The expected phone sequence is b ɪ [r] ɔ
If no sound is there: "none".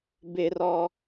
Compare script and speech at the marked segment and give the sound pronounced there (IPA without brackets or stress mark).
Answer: r